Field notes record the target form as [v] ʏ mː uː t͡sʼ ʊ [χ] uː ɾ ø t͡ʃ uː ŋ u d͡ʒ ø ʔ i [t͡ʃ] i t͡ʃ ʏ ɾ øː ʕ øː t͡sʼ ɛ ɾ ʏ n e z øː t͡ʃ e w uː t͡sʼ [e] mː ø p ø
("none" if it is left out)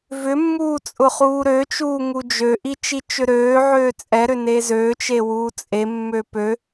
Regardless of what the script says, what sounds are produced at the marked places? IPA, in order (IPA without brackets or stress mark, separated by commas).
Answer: v, χ, t͡ʃ, e